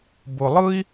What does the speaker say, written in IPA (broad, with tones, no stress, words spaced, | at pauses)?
bʊ˩lˠɯ˦i̯